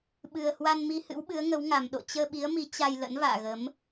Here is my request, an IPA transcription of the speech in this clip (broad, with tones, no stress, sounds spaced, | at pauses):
ɓ ɨ˨˩ ə̯ h w a˧ n m i˧ h ɨ̰˧˥ w ɓ ɨ˨˦ ə̯ ŋ ə˨˦ w ŋ a˨˩ m ɗ o̰˧˨ t͡ɕ əː˧ ɓ i˨˦ ə̯ m i˨˦ t͡ɕ a˧ j l ə̰˧˥ n v a̰ː˧˨ ɣ ə˨˦ m